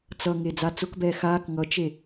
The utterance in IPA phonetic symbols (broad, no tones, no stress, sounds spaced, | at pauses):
t͡s ʌ ŋ e d͡z a t͡s ʊ k b ɛː x aː k ŋ ʌ t͡ʃ e